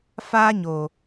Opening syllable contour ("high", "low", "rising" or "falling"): high